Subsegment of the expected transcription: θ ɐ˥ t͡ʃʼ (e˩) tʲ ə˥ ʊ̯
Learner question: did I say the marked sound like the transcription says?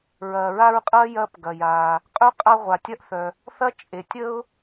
yes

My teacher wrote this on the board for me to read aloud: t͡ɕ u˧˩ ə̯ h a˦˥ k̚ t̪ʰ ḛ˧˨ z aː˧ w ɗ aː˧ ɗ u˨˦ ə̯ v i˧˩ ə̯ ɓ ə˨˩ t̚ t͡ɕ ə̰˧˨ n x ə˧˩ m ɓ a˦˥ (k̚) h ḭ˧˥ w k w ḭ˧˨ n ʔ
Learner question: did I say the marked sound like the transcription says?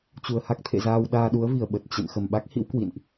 yes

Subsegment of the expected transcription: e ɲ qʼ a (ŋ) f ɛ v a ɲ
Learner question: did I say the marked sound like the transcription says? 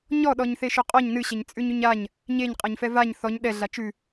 no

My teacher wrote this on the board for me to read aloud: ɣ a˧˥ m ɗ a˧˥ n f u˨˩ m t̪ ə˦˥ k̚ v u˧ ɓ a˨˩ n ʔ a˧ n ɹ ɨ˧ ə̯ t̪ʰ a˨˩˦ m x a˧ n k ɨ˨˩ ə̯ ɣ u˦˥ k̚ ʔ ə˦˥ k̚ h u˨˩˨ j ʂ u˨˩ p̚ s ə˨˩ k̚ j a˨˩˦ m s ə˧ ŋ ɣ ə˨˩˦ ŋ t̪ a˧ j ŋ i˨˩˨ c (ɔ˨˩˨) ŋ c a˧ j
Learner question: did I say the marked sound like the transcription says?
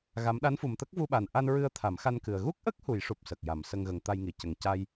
no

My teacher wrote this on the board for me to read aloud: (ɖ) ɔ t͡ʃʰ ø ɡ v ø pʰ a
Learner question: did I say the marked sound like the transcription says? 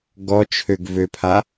no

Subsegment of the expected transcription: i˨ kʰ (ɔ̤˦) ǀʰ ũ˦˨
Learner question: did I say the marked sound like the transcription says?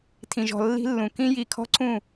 yes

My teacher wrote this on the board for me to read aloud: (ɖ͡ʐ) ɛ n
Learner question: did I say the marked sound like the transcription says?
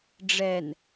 yes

